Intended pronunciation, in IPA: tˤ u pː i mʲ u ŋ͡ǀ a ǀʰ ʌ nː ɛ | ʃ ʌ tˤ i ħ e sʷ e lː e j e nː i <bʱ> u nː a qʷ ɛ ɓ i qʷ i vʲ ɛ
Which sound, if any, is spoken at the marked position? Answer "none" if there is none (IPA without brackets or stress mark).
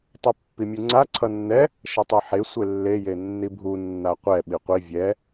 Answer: bʱ